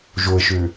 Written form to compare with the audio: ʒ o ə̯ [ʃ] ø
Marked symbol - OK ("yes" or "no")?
yes